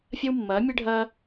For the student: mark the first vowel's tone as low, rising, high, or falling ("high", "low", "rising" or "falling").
high